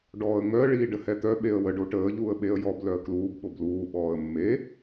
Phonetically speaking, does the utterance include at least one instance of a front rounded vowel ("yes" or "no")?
yes